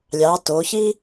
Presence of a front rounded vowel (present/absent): absent